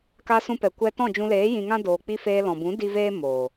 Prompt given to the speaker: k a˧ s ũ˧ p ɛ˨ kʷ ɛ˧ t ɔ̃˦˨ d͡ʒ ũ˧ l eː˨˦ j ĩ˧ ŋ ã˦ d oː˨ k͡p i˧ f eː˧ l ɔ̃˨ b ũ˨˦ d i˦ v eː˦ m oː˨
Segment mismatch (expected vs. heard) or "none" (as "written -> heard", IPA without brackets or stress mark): none